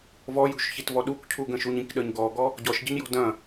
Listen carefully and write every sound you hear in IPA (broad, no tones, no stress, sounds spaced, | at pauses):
v ɔ j ṳ ʃ ç i t v ɔ ɗ u k cʰ u ɡ ə̃ ʃ u ɲ ĩ k ɗ ə ɲ ɡ ɔ ɡ ɔ | ɟ ɔ ʃ ɟ ə̤ ɲ j ɔ̤ d ɐ̃